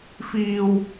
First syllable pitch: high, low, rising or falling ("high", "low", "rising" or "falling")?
high